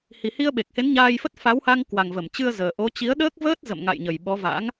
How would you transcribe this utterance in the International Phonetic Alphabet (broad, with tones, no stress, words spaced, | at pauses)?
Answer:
hi˨˩hi˧ə̯ɓe˨˩k̚he˨˦n ɲaː˧jfə˦˥t̚ fa˨˦wha˧ŋkwa˨˩ŋvə˧˩m t͡ɕɨ˧ə̯zəː˨˩ʔo˨˦ t͡ɕi˨˦ə̯ɗəː˦˥k̚vəː˦˥t̚ zə̰˧˨mŋa̰˧˨j ɲə˨˩jɓɔ˨˦va̰˧˥ŋ